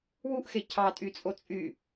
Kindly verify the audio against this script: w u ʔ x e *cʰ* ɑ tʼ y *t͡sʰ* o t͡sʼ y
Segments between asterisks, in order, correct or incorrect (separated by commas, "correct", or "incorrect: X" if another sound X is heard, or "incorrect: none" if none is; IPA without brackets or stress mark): correct, incorrect: t͡sʼ